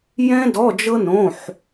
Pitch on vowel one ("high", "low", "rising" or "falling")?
high